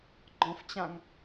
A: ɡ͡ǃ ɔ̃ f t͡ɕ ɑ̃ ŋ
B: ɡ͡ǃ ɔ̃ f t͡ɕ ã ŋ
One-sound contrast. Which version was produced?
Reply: B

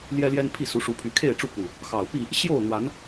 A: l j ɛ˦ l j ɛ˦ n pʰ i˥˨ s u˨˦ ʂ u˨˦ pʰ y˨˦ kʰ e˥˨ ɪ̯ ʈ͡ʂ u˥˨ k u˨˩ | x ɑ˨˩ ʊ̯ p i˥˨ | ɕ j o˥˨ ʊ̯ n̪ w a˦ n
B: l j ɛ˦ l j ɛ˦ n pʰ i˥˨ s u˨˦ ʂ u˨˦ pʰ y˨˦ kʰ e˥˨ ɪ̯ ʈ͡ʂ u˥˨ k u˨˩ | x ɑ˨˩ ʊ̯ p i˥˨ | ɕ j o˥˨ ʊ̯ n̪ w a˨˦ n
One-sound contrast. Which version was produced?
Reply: B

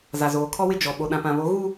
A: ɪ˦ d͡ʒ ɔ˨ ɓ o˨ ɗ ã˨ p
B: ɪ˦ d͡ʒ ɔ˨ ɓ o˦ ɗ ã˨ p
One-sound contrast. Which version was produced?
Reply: A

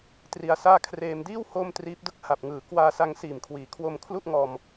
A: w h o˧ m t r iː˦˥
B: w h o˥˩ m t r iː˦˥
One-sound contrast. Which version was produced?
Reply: B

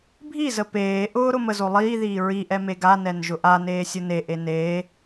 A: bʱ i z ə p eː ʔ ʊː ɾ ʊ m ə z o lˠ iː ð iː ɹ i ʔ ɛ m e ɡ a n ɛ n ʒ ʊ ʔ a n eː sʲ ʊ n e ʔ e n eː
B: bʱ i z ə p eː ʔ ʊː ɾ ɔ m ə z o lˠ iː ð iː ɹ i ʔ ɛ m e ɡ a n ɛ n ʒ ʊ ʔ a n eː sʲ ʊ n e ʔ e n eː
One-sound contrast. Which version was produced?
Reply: A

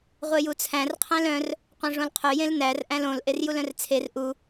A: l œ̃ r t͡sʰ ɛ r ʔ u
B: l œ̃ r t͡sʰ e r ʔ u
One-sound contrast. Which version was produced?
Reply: B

